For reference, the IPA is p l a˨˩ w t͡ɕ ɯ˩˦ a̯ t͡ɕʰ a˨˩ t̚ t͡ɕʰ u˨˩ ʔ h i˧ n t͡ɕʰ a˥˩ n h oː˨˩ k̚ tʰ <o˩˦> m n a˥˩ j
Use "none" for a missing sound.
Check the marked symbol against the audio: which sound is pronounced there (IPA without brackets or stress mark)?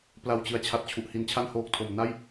o˩˦